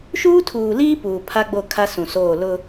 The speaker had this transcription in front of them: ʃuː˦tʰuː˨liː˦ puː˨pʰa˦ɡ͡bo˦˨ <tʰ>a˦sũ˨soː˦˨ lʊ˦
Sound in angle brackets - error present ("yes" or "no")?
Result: yes